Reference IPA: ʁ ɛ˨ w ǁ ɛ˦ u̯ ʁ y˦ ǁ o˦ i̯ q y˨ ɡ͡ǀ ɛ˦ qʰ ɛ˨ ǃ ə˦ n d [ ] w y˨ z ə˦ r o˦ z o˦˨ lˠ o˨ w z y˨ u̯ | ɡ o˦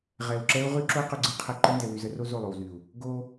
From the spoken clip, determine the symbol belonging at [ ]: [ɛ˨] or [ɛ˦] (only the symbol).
ɛ˨